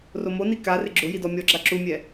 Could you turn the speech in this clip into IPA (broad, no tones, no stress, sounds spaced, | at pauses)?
r o m o n i k a r ɪ ɡ͡ǁ ʊ j i d ɔ mʲ ɔ ɡ͡ǁ a ǁ u mʲ ɛ